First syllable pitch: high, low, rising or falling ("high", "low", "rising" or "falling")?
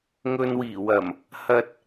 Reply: low